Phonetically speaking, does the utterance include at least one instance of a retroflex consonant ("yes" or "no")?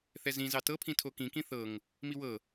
no